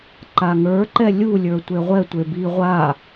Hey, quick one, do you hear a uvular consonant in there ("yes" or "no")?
yes